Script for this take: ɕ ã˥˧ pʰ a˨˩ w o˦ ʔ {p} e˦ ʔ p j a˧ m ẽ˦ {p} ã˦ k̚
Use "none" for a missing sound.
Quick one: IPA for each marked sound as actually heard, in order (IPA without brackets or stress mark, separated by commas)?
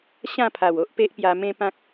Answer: p, p